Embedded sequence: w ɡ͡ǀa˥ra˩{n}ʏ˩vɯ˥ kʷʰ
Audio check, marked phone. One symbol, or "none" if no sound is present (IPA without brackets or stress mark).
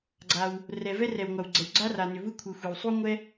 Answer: n